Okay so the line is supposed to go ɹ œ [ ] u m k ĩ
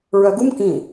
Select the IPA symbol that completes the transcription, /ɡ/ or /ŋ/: ɡ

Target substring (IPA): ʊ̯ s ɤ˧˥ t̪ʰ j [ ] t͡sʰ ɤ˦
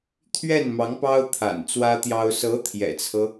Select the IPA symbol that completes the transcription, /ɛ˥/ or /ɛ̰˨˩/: ɛ̰˨˩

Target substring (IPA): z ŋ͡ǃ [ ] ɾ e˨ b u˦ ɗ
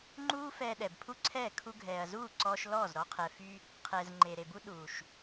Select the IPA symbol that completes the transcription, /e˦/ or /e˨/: e˨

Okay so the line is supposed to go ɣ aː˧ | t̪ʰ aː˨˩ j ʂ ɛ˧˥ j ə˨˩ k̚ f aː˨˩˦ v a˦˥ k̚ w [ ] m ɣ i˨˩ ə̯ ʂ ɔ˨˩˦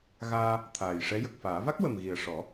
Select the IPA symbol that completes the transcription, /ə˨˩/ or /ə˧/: ə˨˩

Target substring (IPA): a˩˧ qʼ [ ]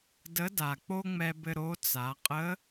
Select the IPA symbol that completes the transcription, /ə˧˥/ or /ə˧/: ə˧˥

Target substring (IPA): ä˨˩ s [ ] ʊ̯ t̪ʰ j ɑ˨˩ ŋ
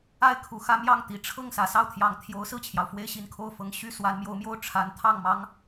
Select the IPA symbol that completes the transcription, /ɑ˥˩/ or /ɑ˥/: ɑ˥˩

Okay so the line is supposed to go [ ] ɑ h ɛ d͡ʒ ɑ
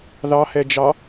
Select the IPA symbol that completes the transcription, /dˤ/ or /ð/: ð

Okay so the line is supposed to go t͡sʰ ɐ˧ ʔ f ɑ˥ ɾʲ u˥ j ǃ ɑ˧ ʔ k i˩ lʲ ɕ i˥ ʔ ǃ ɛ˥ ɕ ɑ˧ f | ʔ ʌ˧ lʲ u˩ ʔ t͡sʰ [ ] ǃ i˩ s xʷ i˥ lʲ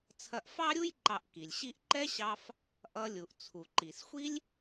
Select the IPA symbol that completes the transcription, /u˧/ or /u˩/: u˩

